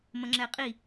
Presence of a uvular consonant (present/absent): present